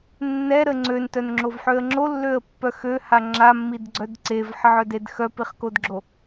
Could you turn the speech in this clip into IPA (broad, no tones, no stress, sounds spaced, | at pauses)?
nː ɛ ɾ ə ŋ͡ǀ ø n t œ n ŋ͡ǁ o v ħ ø ə̯ ŋ͡ǁ o lː ø ə̯ pː œ x ø h a ŋ͡ǁ a mː i d ɡ͡ǀ œ d ǀ e v ħ ə ʕ œ d e d x œ p i χ k o d ɡ͡ǁ o